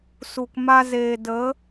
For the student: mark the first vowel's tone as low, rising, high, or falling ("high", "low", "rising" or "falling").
low